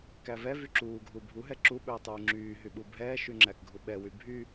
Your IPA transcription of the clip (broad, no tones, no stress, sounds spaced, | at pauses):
k æ v ɛ v y ǁ uː ɡʱ u bʱ u ɦ ɛ ǁ u ɓ ɵː tˤ yː ŋ͡ǁ yː ɦ y ɓ u bʱ ɛː ʃ y ŋ͡ǁ æ k ɡʱ u ɓ ɛ w y bʱ y